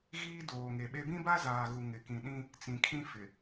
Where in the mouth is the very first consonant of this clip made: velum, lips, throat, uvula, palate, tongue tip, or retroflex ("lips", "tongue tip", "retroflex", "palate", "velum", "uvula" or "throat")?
velum